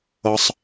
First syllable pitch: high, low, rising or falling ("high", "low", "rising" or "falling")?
low